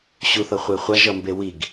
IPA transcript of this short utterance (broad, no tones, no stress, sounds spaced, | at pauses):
ɕ u θ ʌ χʷ e χʷ a ʒ ʌ m b e w i ɡ